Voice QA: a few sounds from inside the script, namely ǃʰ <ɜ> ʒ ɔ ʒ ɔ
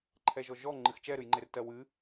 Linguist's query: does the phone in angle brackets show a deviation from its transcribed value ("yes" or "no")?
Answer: yes